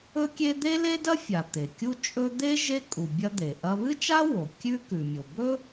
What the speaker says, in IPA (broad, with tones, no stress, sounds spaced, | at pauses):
ɵ˥ kʲ e˥ d̪ e˥ l e˥ d ɐ˥ fʲ a˩ t̪ e˩ kʲ u˥ t͡ʃʼ ɵ˥ d̪ e˥ ʒ e˥ kʼ u˩ bʲ ɐ˥ d̪ e˩ ʔ ɐ˥ β ɨ˥ t͡ʃ a˥ w o˩ kʲ ʉ˥ k ʉ˩ mʲ o˩ b ɵ˥